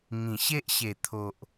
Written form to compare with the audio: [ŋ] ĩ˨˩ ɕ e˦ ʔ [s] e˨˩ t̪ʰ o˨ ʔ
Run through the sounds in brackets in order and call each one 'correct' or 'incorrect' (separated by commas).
correct, incorrect